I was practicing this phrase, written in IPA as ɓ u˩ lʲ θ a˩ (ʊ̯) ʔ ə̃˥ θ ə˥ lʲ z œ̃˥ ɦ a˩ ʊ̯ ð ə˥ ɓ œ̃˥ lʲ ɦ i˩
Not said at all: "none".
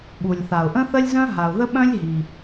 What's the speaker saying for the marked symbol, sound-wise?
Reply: ʊ̯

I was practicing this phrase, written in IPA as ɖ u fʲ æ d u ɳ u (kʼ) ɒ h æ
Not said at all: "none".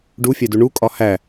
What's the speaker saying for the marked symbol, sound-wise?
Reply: kʼ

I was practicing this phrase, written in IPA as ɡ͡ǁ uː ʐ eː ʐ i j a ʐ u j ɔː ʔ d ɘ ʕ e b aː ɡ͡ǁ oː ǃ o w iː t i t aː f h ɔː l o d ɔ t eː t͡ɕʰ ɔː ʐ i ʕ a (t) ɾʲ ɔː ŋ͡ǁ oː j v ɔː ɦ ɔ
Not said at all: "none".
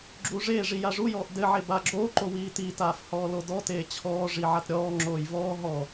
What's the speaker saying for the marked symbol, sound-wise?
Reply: t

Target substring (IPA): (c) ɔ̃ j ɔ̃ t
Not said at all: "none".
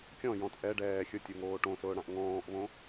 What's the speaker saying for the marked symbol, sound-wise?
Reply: kʲ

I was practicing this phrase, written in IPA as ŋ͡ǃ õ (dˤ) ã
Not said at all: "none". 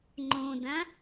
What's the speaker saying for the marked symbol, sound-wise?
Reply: d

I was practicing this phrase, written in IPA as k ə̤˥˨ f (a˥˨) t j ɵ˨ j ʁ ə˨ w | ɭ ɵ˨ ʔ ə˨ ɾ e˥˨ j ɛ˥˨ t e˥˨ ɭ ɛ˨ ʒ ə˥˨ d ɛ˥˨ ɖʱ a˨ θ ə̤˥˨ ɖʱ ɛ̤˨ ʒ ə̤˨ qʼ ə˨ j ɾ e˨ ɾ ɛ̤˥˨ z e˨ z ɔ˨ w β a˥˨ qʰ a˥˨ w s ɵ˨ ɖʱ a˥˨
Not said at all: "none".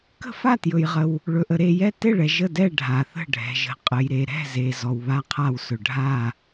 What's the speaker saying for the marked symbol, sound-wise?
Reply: a˥˨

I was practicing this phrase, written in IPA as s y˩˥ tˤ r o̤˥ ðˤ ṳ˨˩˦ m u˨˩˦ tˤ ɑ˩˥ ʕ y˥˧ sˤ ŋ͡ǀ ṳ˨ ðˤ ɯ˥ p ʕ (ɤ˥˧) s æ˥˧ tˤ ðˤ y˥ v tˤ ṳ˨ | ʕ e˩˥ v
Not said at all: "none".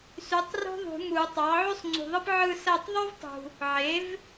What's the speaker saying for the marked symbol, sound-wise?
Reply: ɯ˥˧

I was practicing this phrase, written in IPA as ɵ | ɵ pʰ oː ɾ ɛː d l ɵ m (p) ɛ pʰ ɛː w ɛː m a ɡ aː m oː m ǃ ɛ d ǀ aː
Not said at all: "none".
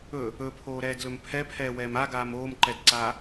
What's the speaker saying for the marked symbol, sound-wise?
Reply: pʰ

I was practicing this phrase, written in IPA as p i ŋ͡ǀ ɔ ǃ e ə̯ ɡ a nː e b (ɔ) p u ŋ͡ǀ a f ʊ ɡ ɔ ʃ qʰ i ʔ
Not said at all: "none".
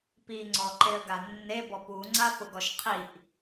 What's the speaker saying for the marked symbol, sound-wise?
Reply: ɔ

